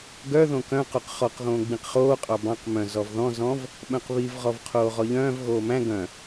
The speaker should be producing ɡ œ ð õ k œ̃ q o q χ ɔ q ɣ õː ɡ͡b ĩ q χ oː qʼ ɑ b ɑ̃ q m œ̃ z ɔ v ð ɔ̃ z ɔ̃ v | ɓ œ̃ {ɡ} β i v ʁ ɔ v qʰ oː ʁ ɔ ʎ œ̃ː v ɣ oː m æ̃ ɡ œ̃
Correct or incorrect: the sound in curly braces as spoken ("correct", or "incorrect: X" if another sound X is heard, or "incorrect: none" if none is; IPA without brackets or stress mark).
incorrect: q